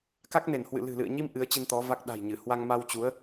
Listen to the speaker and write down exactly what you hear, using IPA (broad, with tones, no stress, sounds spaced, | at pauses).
k a˦˥ k̚ n e˧˩ n h w ɨ̰˧˨ l ɨ̤˨˩ l ɨ̰˧˨ ə̯ ɲ i˧ m ʔ ɨ˨˦ ə̯ t͡ɕ i˧ n t̪ ɔ˨˦ v a˦˥ k̚ ɗ a̤˨˩ j ɲ ɨ˧˩ h w a˧ ŋ m a˧ w t͡ɕ u˨˦ ə̯